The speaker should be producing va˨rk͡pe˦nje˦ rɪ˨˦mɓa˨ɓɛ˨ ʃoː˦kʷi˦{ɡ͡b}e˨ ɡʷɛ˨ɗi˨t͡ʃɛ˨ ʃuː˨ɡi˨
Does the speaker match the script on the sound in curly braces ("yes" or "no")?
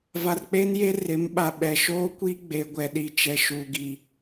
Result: yes